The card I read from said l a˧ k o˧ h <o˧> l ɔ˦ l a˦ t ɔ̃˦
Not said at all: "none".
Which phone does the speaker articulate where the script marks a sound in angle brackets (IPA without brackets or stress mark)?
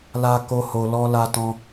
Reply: o˧